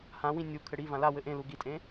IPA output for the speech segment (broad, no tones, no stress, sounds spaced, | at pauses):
h ã w ĩ nʲ u kʰ ɘ ɽ i v ã l a w ɘ ʔ ẽ l u ɡ i tʼ ẽ